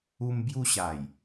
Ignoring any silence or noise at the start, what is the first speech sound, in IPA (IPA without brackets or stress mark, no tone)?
u